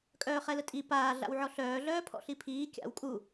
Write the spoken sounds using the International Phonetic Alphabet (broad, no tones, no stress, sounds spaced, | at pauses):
kʼ œː χ ɛ l ə tʼ i p aː ɮ a̰ w ʕ ɔ ɬ œː ɮ œː pʰ ɔ̰ ɬ i pʰ iː kʲ a̰ w kʼ u